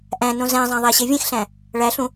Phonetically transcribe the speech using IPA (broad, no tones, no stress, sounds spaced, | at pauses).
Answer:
ʔ æ̃ n õ z æ̃ zˤ æ̃ ðˤ æ ɕ e vʲ ẽ x ɬ æ̃ | ɭ æ ɬ ũ